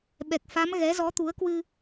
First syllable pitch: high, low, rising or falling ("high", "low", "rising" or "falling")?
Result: low